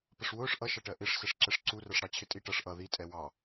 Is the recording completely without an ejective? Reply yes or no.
no